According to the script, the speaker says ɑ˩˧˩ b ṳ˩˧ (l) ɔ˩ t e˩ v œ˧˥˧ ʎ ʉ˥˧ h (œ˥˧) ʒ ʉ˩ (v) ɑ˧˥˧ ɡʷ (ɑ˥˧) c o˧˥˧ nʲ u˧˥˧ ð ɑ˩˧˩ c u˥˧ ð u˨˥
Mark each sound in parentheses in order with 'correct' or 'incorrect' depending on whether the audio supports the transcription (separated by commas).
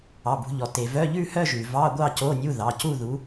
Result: incorrect, correct, correct, correct